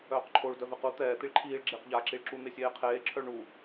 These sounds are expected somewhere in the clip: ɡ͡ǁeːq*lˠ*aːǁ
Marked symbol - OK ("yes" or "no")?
no